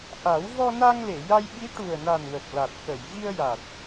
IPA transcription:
ʔ a˨˩˦ w v ɔ˧ n a˧ ŋ l e˨˩˨ j a˧ j ɓ i˧˥ ʈ u˨˩ ə̯ n a˨˩ n w ə˨˩ k̚ l a˨˩ t̚ k ə˨˩˨ j v i˧ ə̯ j a˨˩ t̚

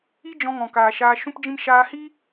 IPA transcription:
i˦ d͡ʒ ɔ̃˧ ŋ ɔ̃˨ k aː˨ ʃ aː˧ ʃ ũ˦ p d͡ʒ ĩ˦ m ʃ aː˧ h i˦

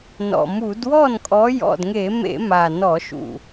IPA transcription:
n ɔ̰˨˩ m u˧˩˧ d w ɔ˥˩ n kʼ ɔ˨˦ j ɔ̰˨˩ d ŋ e˧˩˧ m ḛ˧˩˧ m a˨˩ n ɔ˧˩˧ ʃ ṵ˨˩

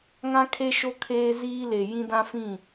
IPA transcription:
ŋ ã˦ kʰ e˦ ʃ o˦ kʰ eː˦ z iː˦ l e˨ j ĩ˦ d ã˦ f ĩ˦˨

